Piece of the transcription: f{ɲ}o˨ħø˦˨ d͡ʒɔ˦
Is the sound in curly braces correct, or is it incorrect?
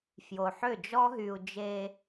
incorrect